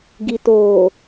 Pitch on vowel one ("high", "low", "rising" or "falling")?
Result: low